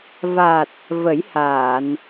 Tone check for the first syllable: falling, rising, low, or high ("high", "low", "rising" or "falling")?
low